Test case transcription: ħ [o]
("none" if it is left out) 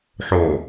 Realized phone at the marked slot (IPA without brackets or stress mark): o